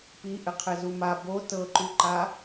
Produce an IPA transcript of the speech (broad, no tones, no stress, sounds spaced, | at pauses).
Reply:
p i ʔ ɘ qʰ ɘ z u m a b o t ɤ ǃ u ǃ a